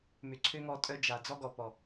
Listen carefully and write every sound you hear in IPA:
mʏ˨ǀʰø˦ŋɔ˧ tʼœ˦d͡ʒa˨ d͡zɔ˦ɡɔ˨pɔ˨

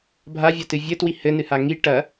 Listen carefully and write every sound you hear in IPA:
bʱa vʲɐtɨvʲɘ twihɘ nɨhaŋi ʈɐ

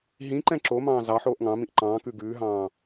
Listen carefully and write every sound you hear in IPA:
ɦĩ ǃɛ̃ǁomɑ̃ː zɑ ħoːʔŋɑ̃mĩʔ ǃɑ̃ːkʉ ɡʉːɦɑ̃ː

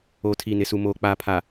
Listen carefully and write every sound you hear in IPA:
oː˨tʰi˨ nɪ˨su˨ moː˨k͡paː˨pʰa˨

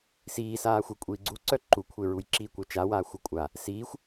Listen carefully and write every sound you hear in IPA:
siːsaːxʷe kʷʼiːɡ͡ǀuǀœ ǃukʷʰeɹujǁiː kʷœt͡ʃawaː xʷəkʷʼa | siːxʷ

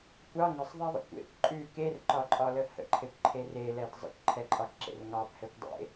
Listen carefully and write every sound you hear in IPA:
kʷɑ ŋəsˤðˤɛðˤə̰ kʷḛkʷ ǃʼʉ kerǃɒǃʼɒlə hə̰ǃʰekʷǃʰe relɛd zˤə̰kʷǃʰɛǃʼɑkǁḛr ŋɑbhɛkʷdˤḛ

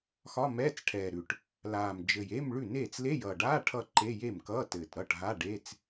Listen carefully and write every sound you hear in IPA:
xɒ˧˥˧mɛː˧˥˧t͡sʈʰɛː˨˩ɾʉ˨˩ʈ | laː˨˩m d͡ʒɘ˨˩je˧˥˧m ɭʉ˥˩neː˥˩t͡s le˧˥˧jʌː˨˩ɖaː˧˥˧ ʈʰʌ˥˩ǃe˧˥˧ je˥˩mkʌː˧˥˧tɘː˨˩t ɾʌ˥˩ʈɦa˧˥˧ɖe˧˥˧t͡s

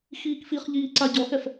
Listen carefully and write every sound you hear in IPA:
xiːkfiχʎiː ǀaɟɔxɛf

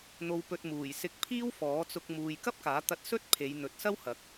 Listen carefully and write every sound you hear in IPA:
n̪o˨wpɵ˨t̚ muː˨˩jsɪ˨˥k̚ pʰiː˥wfɔː˨˥t͡sʊ˧k̚ muː˨jkɐ˥p̚kaː˨˥t̪ɐ˧t̚ sɵ˥t̚pʰe˨˧jn̪ɵ˨˥t̚sɐ˥w hɐ˨˥k̚

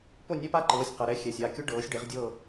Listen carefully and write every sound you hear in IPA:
po˥˩nʲɛ˥˧pa˥ǃɤː˩˧˩sʲ qʌ˩˧˩ɾɛ˥ xʲɛ˩˧˩sʲa˥˩kʲo˥ɖɤː˩˥sʲ ɖe˩˥ʁdʲɤː˥˧

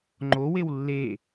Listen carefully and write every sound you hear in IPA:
ŋ͡ǃowew lːe

